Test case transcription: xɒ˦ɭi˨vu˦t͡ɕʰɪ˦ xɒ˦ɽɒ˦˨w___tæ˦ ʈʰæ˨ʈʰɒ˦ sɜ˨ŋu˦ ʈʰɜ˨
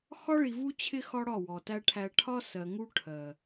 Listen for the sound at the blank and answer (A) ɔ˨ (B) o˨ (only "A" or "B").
A